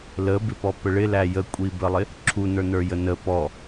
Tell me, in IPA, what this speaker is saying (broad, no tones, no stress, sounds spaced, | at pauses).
l ə b ɪ p ɔ p ə ɭ ɪ l æ j ə kʷʼ i b ə lˠ ɪ | ǁʰ u n ə˞ n ə˞ j ə n ə p ɔ